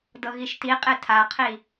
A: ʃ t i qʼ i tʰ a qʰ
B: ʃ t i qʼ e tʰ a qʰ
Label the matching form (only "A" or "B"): B